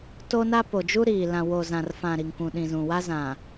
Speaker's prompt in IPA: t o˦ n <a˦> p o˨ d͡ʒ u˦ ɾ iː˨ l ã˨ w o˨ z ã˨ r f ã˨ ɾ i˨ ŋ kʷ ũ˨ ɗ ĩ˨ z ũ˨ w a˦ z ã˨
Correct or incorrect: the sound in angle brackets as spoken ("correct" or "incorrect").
correct